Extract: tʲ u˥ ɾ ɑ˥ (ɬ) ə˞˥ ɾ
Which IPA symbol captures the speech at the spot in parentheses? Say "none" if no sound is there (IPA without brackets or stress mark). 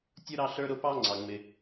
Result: ɬ